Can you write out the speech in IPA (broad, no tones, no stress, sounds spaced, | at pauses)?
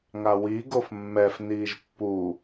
ŋ a w i ɡ o f mː ɛ f n iː ʒ pː u